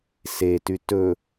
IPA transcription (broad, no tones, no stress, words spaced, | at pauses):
sety tɵ